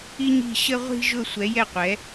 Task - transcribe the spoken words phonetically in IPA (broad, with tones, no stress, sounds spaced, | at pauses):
i˧ ɲ i̤˧˩ ɕ ə˧ ʁʷ i̤˧ ʒ ʊ˧˩ sʷ ɛ˩˧ j ɛ˧˩ qʷ ɛ˩˧